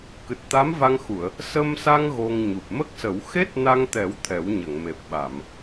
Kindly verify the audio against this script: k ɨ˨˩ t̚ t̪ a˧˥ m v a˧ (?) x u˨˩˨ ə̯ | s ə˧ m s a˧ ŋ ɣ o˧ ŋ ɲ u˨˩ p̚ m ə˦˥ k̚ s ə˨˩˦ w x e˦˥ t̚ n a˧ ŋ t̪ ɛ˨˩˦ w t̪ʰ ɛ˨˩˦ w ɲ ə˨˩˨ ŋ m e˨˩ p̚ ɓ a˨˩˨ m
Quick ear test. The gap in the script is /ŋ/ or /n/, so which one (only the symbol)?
ŋ